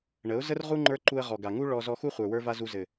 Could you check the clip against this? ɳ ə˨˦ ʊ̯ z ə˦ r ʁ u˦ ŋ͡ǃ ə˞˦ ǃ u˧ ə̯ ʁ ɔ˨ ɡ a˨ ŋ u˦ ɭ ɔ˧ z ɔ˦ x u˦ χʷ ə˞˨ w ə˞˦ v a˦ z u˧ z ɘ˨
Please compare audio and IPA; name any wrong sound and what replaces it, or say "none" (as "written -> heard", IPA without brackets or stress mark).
none